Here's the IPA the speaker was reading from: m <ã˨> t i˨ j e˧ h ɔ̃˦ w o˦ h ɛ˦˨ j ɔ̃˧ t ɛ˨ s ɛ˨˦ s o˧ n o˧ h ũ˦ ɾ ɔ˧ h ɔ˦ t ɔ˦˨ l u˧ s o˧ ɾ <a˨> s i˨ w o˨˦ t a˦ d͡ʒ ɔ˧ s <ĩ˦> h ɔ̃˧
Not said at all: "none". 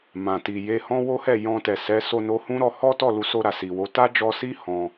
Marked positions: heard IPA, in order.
ã˨, a˨, i˦

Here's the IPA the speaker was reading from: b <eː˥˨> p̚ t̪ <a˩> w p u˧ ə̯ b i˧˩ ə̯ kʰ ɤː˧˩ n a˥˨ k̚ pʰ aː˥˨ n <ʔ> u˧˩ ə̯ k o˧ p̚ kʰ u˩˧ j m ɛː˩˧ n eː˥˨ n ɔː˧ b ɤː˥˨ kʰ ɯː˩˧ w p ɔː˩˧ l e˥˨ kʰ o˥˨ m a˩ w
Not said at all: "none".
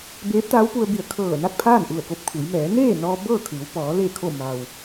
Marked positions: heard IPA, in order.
eː˧˥, a˧˥, ʔ

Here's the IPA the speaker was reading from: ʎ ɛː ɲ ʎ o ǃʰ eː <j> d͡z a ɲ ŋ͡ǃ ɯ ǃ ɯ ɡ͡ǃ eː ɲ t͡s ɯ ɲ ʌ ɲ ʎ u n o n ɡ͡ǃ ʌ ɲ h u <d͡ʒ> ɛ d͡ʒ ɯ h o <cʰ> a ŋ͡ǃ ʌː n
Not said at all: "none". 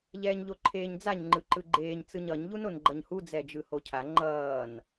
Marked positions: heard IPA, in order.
ɲ, d͡z, cʰ

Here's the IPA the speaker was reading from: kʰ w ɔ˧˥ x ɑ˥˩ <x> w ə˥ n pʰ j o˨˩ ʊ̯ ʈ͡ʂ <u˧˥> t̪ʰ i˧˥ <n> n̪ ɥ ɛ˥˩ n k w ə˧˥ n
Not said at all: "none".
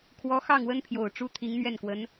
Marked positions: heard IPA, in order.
ŋ, u˥, ŋ

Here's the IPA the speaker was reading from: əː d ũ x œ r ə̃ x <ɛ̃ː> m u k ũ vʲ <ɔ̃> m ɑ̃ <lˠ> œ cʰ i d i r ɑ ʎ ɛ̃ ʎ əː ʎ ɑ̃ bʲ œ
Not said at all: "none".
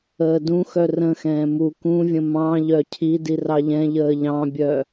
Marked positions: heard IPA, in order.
ɛ̃ː, ə̃, ʎ

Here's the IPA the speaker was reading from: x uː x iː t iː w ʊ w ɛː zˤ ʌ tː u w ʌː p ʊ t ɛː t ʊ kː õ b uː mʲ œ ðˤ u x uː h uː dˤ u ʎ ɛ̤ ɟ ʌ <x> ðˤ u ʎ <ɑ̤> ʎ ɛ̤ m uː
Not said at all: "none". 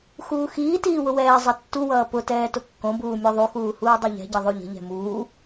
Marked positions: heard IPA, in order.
none, ə̤

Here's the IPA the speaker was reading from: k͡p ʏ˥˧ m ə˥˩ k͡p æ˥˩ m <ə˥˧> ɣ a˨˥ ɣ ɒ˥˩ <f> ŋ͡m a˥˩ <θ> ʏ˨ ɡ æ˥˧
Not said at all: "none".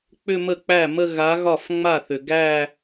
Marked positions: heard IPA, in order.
ə˥˧, f, θ

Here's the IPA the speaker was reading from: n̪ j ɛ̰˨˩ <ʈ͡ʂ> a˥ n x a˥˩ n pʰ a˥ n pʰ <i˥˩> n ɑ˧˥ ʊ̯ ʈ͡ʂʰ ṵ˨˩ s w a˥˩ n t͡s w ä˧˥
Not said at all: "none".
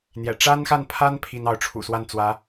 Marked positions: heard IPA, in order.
ʈ͡ʂ, i˥

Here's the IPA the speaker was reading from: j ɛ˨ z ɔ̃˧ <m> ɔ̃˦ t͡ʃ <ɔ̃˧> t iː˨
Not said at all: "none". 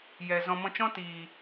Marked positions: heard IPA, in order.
m, ɔ̃˦

